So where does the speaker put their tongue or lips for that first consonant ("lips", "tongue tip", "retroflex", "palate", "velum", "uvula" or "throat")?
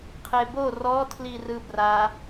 uvula